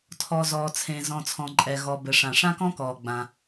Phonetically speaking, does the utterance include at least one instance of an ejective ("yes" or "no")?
yes